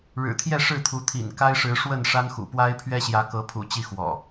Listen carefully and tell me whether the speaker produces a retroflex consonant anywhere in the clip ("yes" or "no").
yes